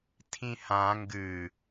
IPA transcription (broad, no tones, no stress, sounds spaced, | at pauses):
tʰ ĩ h ã ŋ ɡ ɨ